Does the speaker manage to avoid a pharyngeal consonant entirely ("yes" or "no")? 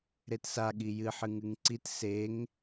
no